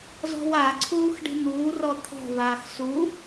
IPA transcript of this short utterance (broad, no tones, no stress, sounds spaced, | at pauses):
z ɔ̤ w a ǀʰ uː x ɖ i̤ n̪ uː r ɔ t̪ʰ ɔ̤ v aː x s u